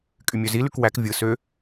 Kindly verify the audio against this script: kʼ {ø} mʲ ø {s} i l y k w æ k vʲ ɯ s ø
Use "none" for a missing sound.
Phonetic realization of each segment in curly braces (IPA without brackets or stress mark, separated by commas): y, z